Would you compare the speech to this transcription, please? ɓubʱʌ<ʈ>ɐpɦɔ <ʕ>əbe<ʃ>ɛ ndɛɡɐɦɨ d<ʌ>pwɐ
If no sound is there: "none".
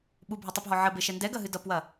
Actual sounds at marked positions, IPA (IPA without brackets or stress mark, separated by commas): tˤ, ʕ, ʃ, ʌ